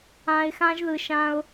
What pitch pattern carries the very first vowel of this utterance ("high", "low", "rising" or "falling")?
low